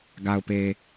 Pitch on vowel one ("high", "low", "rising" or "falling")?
low